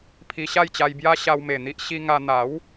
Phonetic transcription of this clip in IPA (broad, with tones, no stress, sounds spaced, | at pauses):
pʰ i˧ ɕ a˥˧ j t͡ɕ a˧ j b j a˦ ɕ a˧ w m e˨˩ n̪ i˦ ʔ ɕ i˧ ŋ a˧ n̪ a˨˦ w